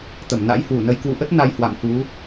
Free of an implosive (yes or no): yes